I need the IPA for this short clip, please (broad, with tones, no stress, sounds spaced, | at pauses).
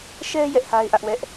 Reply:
ʃ ɛ˦ j ɛ˦ ʔ h a˦ ɪ̯ ʔ ä˦ ʔ w ɛ˦ ʔ